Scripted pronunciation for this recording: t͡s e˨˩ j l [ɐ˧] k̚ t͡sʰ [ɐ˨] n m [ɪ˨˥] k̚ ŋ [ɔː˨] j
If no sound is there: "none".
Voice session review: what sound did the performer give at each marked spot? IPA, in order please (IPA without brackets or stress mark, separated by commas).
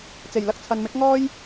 ɐ˧, ɐ˨, ɪ˨˥, ɔː˥